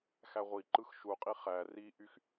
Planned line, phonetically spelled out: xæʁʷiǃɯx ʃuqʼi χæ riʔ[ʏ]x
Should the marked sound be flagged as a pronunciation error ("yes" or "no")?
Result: yes